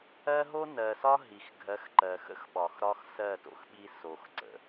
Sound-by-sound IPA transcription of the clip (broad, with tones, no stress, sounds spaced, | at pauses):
ɜ˦ ɦ o˦ n ɜ˨ s ɒ˦ ɦ i˨ x ɡʱ ɜ˨˦ x ǃ ɜ˨ x ə̰˦ x ɓ ɒ˨ x ɾ ɒ˦ x s ɜ˦˨ t o̰˦ x ɓ i˦ s o˨ x ǀ ə̰˨